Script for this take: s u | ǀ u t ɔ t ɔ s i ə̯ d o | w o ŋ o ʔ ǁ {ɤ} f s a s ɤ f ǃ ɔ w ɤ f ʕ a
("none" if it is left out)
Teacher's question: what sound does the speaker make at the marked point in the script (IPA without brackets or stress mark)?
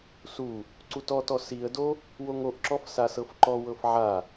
ɔ